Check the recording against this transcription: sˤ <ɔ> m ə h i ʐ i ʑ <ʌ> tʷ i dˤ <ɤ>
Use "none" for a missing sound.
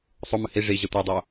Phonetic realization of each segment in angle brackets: o, ʌ, o

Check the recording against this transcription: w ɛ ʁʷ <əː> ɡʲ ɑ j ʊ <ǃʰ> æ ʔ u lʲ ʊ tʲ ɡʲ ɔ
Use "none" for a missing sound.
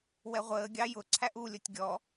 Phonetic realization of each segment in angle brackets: əː, ǀʰ

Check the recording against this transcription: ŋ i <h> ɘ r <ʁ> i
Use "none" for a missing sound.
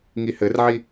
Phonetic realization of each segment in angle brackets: h, ʕ

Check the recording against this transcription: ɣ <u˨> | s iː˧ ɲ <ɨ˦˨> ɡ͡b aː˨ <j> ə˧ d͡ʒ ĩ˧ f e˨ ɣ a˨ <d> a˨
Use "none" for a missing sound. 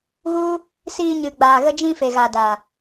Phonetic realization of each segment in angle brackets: u˦, ɨ˨, ɣ, d

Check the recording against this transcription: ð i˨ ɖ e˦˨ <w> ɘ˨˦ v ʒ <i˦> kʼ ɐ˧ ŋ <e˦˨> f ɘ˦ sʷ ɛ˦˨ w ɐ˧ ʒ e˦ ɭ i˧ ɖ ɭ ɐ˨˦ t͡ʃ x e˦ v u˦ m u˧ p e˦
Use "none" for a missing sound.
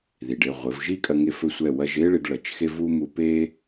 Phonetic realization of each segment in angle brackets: ʁʷ, i˦, e˦˨

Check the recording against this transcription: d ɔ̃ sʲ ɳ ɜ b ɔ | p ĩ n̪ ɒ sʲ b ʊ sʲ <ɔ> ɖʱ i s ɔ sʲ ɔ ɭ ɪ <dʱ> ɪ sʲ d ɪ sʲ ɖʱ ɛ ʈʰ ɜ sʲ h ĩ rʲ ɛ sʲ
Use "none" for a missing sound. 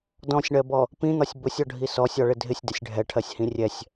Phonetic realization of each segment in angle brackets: ɔ, dʱ

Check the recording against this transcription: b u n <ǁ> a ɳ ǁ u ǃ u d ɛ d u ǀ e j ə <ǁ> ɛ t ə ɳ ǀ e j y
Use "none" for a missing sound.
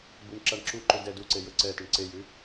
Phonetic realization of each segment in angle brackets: ǁ, ǀ

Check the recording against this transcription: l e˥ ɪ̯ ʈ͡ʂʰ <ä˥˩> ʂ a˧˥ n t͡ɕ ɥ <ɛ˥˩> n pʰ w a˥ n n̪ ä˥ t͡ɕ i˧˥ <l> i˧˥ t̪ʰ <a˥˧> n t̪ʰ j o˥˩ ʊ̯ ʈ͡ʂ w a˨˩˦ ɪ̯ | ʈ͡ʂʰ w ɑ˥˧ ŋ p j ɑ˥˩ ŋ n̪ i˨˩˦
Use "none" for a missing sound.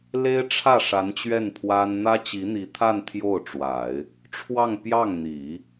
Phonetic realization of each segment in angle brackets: ä˥˩, ɛ˥˩, n̪, a˥˧

